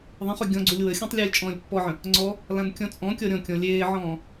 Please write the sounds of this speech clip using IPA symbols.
ðˤ ə̃ χ ɵ ɡʲ ɔ̃ ɡ͡ǀ u lʲ w ə xʲ ɔ̃ tˤ lʲ ɵː lʲ t͡ʃʼ ɔ̃ː lʲ pː ɔ ʕ ə̃ | ŋ͡ǀ ɔ | l ã n kʲ ɔ̃ t͡sʼ ɔ̃ kʲ ɔ ɾʲ ɔ̃ kʲ ɔ̃ lʲ eː ʕ ɔ̃ː

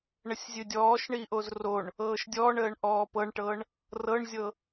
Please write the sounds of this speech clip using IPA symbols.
ɳ ə sʲ zʲ ɨ dʲ ɔː ʃ ɳ i ʔ o z r o ɳ | ɤː ʃ dʲ ɔː ɳ əː ɳ ʔ ɔː p ɤ ɳ ʈ ɤ ɳ | r ɤ ɳ zʲ ɤ

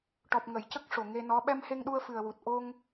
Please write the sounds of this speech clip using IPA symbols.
ʈ ɔ˨˩ p̚ ŋ ə˨˩˨ j c ə˦˥ k̚ ʂ o˨˩ ŋ e˧ n ɔ˧˥ ɓ ɛ˧ m h e˧ ŋ ɗ u˧ ə̯ f ɨ˨˩ ə̯ w u˨˩ t̚ ʔ o˧ ŋ

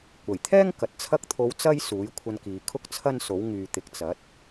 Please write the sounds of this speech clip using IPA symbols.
kʷ ɐ˨˩ j t̪ʰ ɛː˥ ŋ k ɐ˨ t̚ t͡sʰ ɐ˥ k̚ t̪ʰ o˧ w t͡s ɐ˥ j s uː˨˥ j kʷʰ ɐ˧ n k iː˨ kʰ ʊ˥ k̚ t͡sʰ ɐ˥ n s o˨˥ w ŋ yː˨ t̪ ɪ˨˥ k̚ t͡s ɐ˨˥ t̚

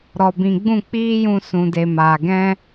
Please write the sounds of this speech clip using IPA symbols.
ɾ ɔ˨ b ĩ˨ ɡ͡b ũ˦˨ k͡p iː˦ j ũ˧ s ũ˨ d e˨ m aː˨ ɡ ɛ̃˦

